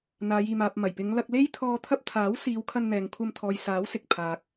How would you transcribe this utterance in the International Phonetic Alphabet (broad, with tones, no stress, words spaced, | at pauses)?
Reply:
n̪aː˨˧jiː˨maː˨p̚ mɐ˨˩jpɪ˨˧ŋlɐ˧k̚ le˥jt̪ʰɔː˧ t̪ʰɐ˥p̚ t̪ʰaː˨˥wsiː˨˧w kʰɐ˧nn̪ɛː˨ŋkʷʰɐ˧m t̪ʰɔː˨jsaː˨˥w sɪ˨k̚pʰaː˨k̚